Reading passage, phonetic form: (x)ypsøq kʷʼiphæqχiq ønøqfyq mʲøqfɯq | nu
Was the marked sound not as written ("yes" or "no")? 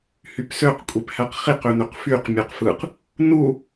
yes